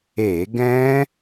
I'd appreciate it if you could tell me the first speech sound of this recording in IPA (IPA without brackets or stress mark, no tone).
e